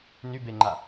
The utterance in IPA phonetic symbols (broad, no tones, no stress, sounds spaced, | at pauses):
n y b e ŋ͡ǃ a